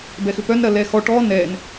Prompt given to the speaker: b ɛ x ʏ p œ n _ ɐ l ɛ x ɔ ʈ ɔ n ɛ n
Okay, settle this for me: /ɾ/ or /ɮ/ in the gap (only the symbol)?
ɾ